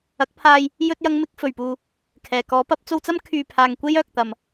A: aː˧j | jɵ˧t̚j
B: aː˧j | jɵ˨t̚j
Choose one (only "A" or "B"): A